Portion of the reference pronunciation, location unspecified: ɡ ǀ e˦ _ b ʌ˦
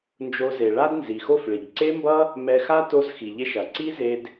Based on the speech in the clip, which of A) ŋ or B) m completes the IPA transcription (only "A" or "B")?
B